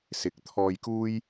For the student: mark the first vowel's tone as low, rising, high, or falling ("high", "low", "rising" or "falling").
low